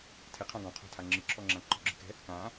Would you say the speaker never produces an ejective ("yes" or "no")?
yes